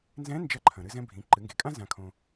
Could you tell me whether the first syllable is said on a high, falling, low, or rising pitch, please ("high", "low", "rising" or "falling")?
rising